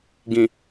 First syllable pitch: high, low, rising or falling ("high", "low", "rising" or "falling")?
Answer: low